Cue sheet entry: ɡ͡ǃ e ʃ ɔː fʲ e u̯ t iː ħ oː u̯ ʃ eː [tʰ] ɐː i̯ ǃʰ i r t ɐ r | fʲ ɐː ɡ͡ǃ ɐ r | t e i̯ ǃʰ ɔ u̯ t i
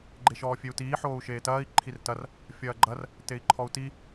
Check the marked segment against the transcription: incorrect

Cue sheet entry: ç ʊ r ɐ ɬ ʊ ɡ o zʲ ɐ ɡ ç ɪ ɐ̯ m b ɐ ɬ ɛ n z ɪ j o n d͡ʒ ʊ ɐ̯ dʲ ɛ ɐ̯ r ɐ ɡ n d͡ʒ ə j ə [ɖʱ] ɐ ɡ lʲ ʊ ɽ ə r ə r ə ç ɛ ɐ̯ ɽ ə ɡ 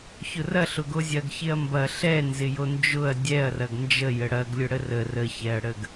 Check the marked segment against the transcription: incorrect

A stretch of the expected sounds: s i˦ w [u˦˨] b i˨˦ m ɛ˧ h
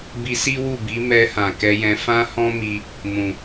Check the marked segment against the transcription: correct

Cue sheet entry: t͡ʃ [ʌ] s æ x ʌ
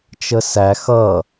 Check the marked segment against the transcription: incorrect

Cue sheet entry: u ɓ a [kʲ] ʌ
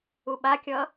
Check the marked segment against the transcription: correct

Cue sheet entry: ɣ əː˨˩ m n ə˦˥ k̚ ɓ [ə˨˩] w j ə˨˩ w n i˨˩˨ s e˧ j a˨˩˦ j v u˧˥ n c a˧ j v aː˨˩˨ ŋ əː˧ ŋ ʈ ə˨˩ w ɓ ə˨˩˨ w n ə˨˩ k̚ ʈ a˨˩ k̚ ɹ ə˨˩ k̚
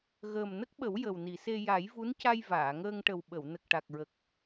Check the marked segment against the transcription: incorrect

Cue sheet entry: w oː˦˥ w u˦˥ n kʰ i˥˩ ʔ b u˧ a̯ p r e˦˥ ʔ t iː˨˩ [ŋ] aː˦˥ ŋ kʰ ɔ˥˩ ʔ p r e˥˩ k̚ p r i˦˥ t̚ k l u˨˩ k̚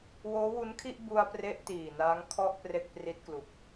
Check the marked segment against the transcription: incorrect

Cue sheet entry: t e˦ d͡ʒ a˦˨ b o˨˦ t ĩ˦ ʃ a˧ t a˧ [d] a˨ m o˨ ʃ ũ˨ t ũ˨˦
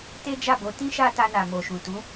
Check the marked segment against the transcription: incorrect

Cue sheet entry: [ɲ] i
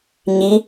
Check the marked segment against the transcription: correct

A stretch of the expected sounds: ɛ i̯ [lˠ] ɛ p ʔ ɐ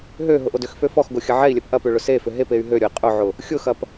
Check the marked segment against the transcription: incorrect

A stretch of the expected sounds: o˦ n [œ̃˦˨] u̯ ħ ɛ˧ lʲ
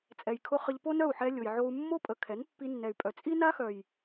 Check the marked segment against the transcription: incorrect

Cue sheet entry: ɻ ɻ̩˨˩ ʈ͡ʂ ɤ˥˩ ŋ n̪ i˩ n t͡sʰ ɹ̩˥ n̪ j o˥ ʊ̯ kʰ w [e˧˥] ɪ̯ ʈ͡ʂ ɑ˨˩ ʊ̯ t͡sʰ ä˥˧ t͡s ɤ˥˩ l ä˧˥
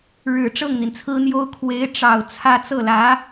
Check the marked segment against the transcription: correct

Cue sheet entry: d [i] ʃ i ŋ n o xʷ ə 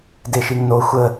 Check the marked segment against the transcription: incorrect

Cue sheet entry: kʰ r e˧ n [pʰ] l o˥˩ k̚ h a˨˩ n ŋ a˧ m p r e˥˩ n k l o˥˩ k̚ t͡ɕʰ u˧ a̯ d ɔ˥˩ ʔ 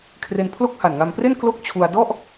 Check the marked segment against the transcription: correct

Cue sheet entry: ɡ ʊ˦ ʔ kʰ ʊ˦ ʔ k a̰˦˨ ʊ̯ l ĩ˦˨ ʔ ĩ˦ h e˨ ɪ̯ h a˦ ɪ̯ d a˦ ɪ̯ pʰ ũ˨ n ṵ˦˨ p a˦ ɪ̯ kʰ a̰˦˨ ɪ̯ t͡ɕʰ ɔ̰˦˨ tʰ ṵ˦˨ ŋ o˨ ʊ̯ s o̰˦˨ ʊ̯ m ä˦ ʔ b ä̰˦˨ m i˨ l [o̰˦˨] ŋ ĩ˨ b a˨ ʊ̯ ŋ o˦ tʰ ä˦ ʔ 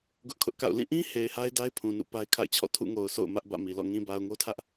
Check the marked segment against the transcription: incorrect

